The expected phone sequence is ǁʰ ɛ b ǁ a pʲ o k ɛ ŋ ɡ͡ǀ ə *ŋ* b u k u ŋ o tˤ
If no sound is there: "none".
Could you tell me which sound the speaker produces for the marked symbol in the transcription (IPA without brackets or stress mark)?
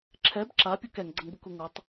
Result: ŋ